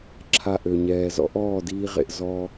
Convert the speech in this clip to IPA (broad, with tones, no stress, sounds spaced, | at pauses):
ǁʰ a˧ ʔ ø˨ ɲ ɛː˨ z ɔ̰˦ ʔ ɔː˦˨ d iː˧ ʁ ḛ˨ ʔ z ɔ˧